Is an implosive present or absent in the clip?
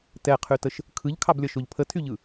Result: absent